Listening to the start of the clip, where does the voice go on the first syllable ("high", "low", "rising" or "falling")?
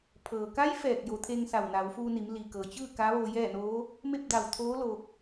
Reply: low